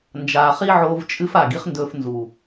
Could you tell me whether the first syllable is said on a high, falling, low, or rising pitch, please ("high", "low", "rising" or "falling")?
low